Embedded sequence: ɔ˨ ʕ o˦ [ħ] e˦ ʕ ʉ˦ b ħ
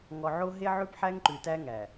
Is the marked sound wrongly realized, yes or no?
yes